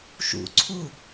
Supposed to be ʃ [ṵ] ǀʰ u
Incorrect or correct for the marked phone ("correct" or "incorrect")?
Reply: correct